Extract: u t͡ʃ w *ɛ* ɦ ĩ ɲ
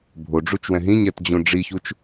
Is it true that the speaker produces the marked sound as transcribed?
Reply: no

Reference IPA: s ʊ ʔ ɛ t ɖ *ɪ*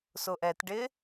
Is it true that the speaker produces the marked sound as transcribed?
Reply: yes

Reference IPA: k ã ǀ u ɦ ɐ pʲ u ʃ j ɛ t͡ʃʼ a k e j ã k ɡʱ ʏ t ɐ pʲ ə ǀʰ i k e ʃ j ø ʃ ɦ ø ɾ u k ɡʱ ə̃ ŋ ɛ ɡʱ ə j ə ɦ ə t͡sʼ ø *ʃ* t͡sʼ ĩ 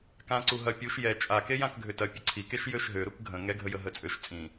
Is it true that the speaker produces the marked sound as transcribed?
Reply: yes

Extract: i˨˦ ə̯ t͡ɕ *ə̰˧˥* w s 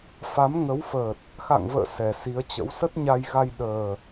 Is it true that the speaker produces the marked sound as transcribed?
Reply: yes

